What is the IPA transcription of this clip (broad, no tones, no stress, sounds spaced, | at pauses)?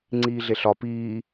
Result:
ŋ͡ǀ iː ɮ e ɬ ɒ p iː